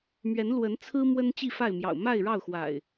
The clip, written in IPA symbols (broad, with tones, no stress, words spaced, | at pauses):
mɥɛ˨˦nlwə˨˦nt͡sʰɹ̩˦ mwə˦nt͡ɕi˥˨fa˥˨ɪ̯mjɑ̰˨˩ʊ̯ ma˥˨ɪ̯ɻɑ˥˨ʊ̯xwa̰˨˩ɪ̯